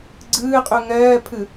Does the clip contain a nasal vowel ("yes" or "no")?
no